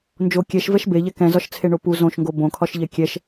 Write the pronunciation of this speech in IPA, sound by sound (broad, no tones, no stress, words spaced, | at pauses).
nd͡ʒo kʲɛʃvɛʃ beʎɛ kɛ̃zɒʃt͡sʰeɳo pu zõʃŋɡo bõkʰɒʃʎɛ kʲɛʃ